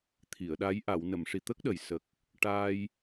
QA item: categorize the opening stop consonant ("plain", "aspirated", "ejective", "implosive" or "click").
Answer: aspirated